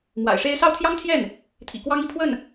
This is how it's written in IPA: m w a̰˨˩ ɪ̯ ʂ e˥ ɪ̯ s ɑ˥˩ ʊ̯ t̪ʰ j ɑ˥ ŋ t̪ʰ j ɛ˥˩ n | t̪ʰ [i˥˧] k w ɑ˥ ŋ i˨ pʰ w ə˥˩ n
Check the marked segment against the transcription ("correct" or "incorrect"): incorrect